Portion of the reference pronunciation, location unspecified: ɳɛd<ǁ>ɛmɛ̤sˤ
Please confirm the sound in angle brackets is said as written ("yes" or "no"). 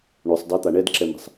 yes